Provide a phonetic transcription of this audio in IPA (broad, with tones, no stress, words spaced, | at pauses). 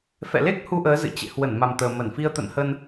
fɛ̰˧˨le˦˥k̚ hu˧ʔəː˨˦zɨ̰˧˨ t͡ɕḛ˧˨ hwə˧˩nma˨˩mt̪əː˨˩ mə˧˩nfi˧ə̯ t̪ə̰˧˨nhə˧n